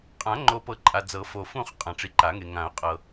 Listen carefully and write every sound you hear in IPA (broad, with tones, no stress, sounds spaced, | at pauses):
qʼ ã˨˩˦ ŋ͡ǃ o˨ p ɤ˨˩˦ ǃʼ a˨ d͡z ɤ˨˩˦ f o˨ f ũ˥˧ χ qʼ ã˨ ʈ͡ʂ i˨ ǃ a˨˩˦ ŋ e˨ ŋ ã˨˩˦ ʊ̯ qʼ ɤ˨